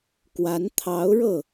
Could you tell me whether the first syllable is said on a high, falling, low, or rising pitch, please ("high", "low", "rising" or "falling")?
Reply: rising